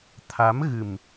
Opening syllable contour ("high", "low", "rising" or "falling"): rising